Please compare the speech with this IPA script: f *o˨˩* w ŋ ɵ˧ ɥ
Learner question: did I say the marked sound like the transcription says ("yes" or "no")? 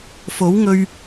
no